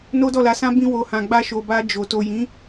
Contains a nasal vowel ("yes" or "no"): yes